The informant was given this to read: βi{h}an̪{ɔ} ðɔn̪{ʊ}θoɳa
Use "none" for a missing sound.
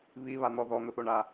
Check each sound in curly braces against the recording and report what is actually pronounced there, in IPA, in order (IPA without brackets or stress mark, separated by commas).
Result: β, ɔ, ʊ